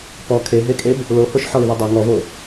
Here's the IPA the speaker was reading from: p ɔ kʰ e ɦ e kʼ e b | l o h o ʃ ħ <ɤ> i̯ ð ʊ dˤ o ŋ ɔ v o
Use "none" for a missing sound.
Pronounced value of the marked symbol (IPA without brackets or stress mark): ɔ